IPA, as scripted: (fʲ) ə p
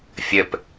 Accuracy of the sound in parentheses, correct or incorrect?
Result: correct